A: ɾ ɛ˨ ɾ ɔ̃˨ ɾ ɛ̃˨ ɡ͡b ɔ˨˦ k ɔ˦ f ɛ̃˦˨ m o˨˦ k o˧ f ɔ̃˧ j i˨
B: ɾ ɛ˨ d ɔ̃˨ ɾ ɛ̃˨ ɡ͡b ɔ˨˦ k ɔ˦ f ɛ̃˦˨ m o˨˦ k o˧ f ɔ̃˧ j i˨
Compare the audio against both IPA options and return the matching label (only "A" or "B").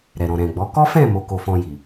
A